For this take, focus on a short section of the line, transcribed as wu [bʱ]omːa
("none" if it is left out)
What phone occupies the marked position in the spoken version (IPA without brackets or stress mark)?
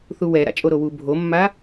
bʱ